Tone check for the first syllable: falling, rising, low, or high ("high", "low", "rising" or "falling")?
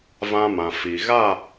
high